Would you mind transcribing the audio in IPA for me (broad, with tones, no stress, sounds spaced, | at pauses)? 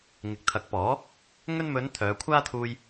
ŋ ɪ˨˥ k̚ t̪ʰ ɐ˨˥ k̚ p ɔː˨˥ | ŋ ɵ˥ n m ɵ˨˧ n t̪ʰ œː˨˧ kʷʰ aː˥ t̪ʰ uː˧ j